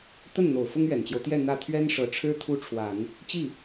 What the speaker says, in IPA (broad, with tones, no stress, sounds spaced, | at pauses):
t̪ ə˥˩ n n̪ o˨˩ ʊ̯ f ʊ˥ ŋ ɥ ɛ˨˩ n t͡ɕ j o˦ ʊ̯ t̪ j ɛ˥˧ n̪ ä˥˩ t̪ʰ ɥ ɛ˥ n ʂ ɤ˧˥ ʈ͡ʂʰ ɻ̩˥ t̪ʰ u˥ ʈ͡ʂʰ w a˨˩˦ n | t͡ɕ i˥˩